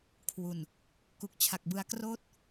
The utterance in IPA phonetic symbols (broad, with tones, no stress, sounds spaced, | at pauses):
kʰ w u˨˩ n | k u˨˩ k̚ t͡ɕʰ a˨˩ k̚ b ɯ˧ a̯ k r oː˥˩ t̚